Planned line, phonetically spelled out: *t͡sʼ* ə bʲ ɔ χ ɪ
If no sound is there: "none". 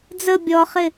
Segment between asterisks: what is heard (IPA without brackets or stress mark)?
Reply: d͡z